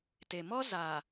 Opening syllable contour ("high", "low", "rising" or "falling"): low